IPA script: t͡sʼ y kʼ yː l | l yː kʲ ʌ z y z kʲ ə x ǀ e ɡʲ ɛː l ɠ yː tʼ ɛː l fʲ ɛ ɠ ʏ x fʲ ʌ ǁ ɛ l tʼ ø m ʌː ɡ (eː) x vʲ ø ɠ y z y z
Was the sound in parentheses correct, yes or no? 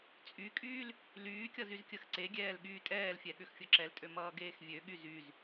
yes